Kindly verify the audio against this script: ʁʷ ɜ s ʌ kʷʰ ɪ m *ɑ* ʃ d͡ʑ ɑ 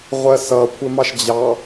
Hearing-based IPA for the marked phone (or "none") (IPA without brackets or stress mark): ɑ